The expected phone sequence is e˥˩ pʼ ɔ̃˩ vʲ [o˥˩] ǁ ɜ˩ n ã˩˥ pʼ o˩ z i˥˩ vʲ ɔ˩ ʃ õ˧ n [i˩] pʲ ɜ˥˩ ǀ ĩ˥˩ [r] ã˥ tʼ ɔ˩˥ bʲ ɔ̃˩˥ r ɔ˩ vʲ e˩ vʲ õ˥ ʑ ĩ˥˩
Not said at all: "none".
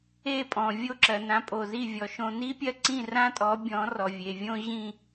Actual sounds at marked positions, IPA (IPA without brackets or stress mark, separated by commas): o˥˩, i˥, r